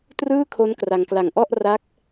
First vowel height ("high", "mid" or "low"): high